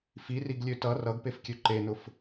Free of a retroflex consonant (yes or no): yes